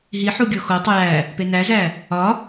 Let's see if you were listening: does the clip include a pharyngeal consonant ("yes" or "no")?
yes